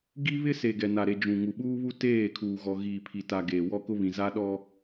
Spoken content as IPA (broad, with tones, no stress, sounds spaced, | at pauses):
ɡ i˦ β ɪ˦ s e˨ ɡ ɛ˨ n a˨ ɾ e˨ d͡ʒ ũ˨ ŋ u˨ ɓ uː˦ β u˦ t eː˦˨ kʰ uː˨ ɣ ɔ˨ ɣ iː˨ pʰ i˨ t a˨ ɡ eː˨ w ɔ˦ k ʊ˦ β ĩ˨ z a˦ ɗ ɔ˦